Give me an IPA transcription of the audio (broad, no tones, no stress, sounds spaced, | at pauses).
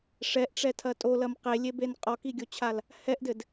ʂ ɛ ʔ ʈ͡ʂ ɛ tʰ ɐ tʼ o l ɐ m q e lʲ e b e n qʼ ɔ k i ɡʲ o t͡ɕʰ a l | h ɛ ʔ d ɘ d